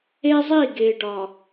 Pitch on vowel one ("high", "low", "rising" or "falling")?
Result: high